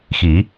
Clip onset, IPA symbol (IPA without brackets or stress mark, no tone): x